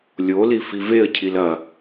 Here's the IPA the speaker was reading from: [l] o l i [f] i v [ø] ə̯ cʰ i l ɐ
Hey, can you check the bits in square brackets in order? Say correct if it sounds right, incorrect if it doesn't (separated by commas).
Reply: incorrect, correct, incorrect